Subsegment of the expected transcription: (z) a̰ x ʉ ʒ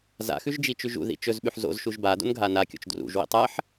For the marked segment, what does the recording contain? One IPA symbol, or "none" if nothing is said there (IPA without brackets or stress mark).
z